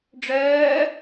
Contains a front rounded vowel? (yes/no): yes